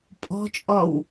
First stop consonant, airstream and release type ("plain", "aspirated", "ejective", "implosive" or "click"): ejective